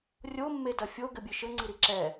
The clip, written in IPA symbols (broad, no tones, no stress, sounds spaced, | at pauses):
rʲ o mː e d ɐ fʲ o ɡ ɘ bʲ ɨ ʃ ɘ ŋ͡ǀ ɨ ɾ i ǁ ɛ